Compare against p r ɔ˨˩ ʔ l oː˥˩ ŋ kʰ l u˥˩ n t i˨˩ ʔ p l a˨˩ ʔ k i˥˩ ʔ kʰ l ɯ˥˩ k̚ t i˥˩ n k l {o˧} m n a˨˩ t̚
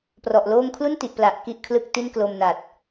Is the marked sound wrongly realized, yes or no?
no